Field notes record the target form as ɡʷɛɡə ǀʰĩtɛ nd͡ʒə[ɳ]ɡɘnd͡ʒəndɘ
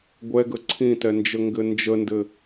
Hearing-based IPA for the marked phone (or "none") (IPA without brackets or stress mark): ŋ